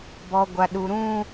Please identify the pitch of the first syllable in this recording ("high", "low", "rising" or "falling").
low